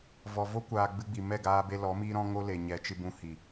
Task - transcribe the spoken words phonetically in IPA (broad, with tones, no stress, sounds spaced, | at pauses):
v ɔ˨ v o˦ kʷ aː˨ ɡ͡b ɨ˧ ɡ͡b i˨ m ɛ˦˨ ɡ aː˧ b e˧ l ɔ˨˦ m iː˦ ɾ ɔ̃˦ ŋ o˦ l e˨ ɲ ɛ˨˦ t͡ʃ ɨ˧ b ũ˧ h i˨